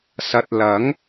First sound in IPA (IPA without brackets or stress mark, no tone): s